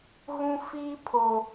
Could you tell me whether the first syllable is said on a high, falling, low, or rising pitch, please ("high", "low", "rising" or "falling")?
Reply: high